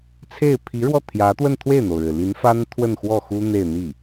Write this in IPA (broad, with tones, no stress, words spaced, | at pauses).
t͡sʰe˥˩ɪ̯ pʰi˧˥ ɻwɔ˥˩t̪ʰjä˧˥t̪wə˥˧n t̪ʰwe˥˩ɪ̯n̪o˩ʊ̯ɻɻ̩˩ li˧˥nfa˥n t̪ʰwə˥˧nxwɔ˥˩xu˥ n̪e˥˧ɪ̯n̪i˥˩